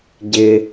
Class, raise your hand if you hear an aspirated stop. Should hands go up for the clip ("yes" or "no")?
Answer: no